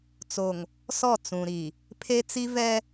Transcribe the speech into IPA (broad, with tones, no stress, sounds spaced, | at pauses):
t͡s o˨ ŋ | s ɔ˦˨ t͡s ũ˨ ɾ i˨ | pʰ e˦ t͡s i˦ v ɛ˦